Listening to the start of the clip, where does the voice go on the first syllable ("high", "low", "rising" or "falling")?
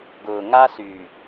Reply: low